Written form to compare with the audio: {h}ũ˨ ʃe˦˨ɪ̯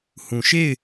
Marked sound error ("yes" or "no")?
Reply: no